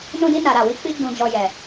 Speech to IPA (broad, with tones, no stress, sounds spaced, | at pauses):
n ũ˧ d i˧ n a˨ ɾ a˨ w i˧ k͡p i˧ ɡ͡b ũ˨ d͡ʒ ɔ˨ j ɛ˨